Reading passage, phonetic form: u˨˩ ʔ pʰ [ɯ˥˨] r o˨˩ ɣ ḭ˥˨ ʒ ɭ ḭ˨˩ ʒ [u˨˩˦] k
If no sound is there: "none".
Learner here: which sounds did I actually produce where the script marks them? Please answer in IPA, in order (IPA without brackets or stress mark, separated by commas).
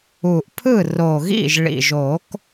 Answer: ɯ˥˨, o˨˩˦